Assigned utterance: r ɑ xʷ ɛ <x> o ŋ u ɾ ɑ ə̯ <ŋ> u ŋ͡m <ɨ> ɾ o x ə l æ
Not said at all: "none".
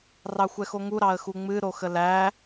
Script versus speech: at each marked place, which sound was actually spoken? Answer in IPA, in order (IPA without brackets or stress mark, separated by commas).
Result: x, x, ɨ